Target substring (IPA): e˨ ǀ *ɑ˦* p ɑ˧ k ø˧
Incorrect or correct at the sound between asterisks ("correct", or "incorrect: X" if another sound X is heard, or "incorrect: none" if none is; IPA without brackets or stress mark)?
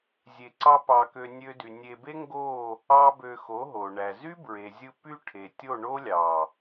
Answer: correct